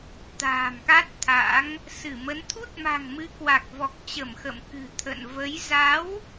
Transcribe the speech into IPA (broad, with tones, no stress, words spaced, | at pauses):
t̪a̤ː˨˩mka˦˥t̚t̪ʰa̰˧˥ŋ | sɨ˧˩mə˨˦n t̪ʰu˦˥t̚ma̤˨˩ŋmɨ˨˦kwa˨˩k̚ vɔ˨˩k̚t͡ɕə˧˩mxə̰˧˨m kɨ̤˨˩t̪ʰə̰˧˨n və˨˦j za˨˦w